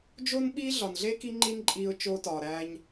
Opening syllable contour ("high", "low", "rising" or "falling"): high